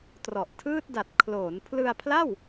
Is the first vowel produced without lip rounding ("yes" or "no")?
no